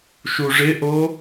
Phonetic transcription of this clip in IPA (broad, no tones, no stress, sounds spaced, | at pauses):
ʃ u ʐ ɪ ʔ o